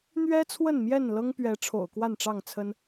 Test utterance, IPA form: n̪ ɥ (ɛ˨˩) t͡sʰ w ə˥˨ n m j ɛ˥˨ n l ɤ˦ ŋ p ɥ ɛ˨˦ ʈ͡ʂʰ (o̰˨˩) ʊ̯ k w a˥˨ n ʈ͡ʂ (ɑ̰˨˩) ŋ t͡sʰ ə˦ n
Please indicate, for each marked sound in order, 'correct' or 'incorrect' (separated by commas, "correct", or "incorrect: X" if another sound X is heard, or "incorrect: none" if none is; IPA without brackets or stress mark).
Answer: incorrect: ɛ˦, correct, incorrect: ɑ˥˨